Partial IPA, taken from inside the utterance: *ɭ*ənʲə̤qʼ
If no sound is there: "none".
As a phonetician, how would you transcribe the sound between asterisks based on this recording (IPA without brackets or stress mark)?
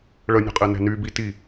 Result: ɭ